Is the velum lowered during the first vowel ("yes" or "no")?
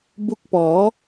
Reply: no